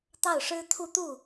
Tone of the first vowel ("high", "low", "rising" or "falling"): falling